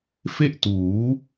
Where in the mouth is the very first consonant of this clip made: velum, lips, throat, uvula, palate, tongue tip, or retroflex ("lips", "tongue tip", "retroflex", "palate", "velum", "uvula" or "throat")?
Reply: lips